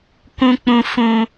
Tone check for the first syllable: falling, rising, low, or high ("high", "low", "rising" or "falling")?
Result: high